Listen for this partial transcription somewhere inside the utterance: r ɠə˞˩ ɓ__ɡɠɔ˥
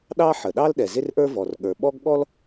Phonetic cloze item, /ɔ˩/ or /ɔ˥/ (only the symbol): ɔ˥